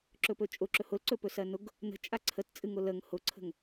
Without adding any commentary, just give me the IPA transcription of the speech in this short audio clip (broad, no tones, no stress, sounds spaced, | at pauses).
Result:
ǁ ɵ p ɵ t͡ʃʼ ʊ ǁ ɵ h ʊ l ǀ ɵ p ɵ s ɜ n ʊ ɡ | n ə̤ t͡ʃʼ a ǀʰ ə t t͡sʼ ɨ ŋ ʊ l ə ŋ h ʊ ǀʰ ə̤ ŋ